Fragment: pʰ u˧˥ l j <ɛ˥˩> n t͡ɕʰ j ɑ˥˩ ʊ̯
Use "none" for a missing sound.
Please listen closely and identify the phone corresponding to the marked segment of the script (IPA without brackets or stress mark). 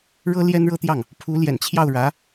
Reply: ɛ̰˨˩